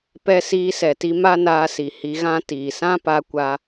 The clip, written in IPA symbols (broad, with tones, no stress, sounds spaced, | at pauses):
p ɛ˧ s iː˧ s ɛ˨ t i˧ m a˦ n aː˧ s i˨ h i˧ ɣ ã˦ t iː˨ s ã˦ p a˧ kʷ a˧